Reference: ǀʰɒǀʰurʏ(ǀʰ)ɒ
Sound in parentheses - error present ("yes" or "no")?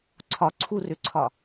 no